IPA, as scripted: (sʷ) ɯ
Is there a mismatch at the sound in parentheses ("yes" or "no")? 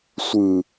no